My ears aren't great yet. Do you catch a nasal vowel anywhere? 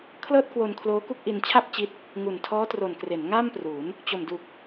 no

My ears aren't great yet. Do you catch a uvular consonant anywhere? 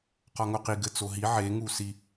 yes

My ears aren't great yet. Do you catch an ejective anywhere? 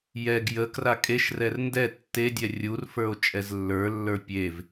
yes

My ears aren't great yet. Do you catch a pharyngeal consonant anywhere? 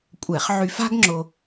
yes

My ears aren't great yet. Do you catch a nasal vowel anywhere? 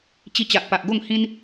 yes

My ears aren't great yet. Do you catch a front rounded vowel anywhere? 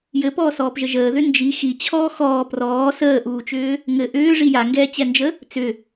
yes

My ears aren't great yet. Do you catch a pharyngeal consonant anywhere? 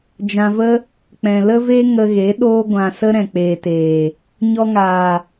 no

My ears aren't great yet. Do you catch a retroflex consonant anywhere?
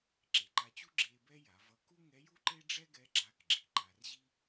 yes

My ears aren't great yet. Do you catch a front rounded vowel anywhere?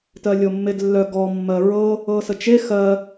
yes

